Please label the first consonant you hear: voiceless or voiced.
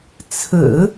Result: voiceless